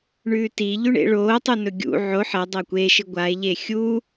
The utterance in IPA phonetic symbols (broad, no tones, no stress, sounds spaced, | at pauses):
ɳ ʉː t i ʎ ʉ ɳ ḛ ɭ oː tˤ u n ɵ ɡʲ ṵ ʕ o ħ ɐ dˤ ɐː kʷ e ʃ ɨ ɡʷ a e̯ ʎ e xʲ u